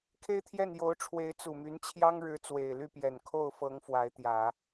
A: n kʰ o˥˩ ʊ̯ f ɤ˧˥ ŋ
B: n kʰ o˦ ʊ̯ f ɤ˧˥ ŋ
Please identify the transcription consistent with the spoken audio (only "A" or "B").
A